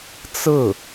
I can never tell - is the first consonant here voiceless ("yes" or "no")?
yes